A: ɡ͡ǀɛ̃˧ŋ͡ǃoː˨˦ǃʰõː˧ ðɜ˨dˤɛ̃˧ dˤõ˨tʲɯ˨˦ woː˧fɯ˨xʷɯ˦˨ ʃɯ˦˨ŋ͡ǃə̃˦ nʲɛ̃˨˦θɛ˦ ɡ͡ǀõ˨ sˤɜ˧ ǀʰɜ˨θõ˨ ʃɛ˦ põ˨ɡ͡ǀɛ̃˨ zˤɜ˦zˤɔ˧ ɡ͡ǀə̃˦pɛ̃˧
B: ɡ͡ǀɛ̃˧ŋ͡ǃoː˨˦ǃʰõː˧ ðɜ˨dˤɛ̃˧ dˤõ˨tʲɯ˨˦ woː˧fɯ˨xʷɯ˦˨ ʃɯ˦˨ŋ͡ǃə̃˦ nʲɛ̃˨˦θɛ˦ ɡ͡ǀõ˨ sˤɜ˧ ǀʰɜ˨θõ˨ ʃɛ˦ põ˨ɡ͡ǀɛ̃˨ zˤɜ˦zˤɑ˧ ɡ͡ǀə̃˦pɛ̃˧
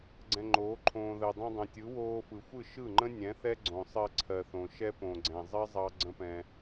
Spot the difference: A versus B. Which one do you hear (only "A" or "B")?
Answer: B